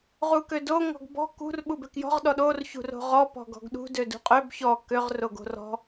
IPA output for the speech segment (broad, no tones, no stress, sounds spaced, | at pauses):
ʁ u k ø d o ŋ ɔ̤ ɡ b ɔ̤ k ṳ r ɓ u b ø k j ɔ̤ ʁ ɗ ɔ ɗ o r ç ṳ r o̤ ʁ ɔ p ɔ̤ ɡ ɔ̤ ɡ ɗ ṳ d ø d ṳ qʼ ø b ç ɔ k ø ʁ r o ɡ o̤ r ɔ̤